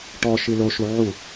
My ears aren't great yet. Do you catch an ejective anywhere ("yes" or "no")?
no